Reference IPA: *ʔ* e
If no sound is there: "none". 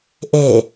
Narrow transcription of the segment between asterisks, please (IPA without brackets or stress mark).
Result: ʔ